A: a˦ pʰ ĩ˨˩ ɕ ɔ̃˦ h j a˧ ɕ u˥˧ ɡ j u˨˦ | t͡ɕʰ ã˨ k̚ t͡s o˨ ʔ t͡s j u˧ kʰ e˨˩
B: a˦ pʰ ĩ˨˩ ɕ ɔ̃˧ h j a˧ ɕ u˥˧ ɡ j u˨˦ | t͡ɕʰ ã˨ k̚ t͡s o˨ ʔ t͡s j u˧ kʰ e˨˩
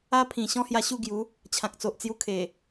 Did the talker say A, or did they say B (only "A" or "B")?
A